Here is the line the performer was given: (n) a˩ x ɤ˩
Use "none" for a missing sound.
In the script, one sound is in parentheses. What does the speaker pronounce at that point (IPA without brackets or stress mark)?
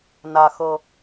n